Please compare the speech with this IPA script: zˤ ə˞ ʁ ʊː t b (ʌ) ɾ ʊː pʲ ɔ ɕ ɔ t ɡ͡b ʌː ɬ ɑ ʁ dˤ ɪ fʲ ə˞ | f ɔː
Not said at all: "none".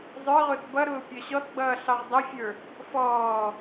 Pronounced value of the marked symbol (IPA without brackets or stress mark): ʌ